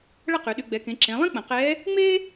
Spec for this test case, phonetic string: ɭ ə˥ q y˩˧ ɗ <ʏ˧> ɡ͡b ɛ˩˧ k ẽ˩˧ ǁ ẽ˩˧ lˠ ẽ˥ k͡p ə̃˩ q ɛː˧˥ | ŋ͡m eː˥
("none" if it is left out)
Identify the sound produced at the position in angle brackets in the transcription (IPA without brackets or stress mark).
y˧